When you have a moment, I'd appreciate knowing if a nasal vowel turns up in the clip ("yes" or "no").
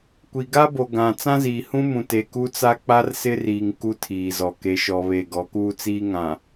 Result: yes